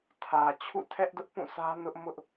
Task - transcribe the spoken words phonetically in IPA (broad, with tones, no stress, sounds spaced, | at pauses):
tʰ ä˨ t͡ɕʰ ṵ˦˨ tʰ ɛ˦ ʔ d ʊ˦ ʔ p ũ˦˨ s ä˦ n ʊ˦ ʔ m ʊ˦ ʔ